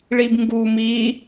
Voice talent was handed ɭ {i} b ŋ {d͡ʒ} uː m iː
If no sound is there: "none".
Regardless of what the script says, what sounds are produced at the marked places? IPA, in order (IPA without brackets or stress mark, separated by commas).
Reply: i, ɡ